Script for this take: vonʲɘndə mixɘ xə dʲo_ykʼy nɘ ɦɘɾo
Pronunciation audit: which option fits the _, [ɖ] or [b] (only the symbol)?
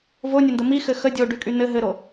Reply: ɖ